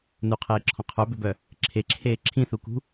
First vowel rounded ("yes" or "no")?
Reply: yes